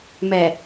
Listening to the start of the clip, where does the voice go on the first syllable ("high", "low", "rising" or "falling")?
low